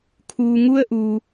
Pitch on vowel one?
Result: low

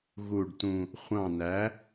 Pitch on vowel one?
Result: low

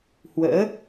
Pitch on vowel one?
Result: rising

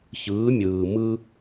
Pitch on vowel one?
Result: rising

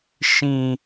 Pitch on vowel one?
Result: low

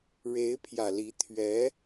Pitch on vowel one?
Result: rising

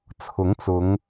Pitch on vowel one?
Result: rising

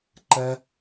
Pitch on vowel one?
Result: high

